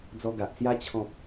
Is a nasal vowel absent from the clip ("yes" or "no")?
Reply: no